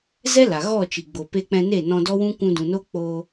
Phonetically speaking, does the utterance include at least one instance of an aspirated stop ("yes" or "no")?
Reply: no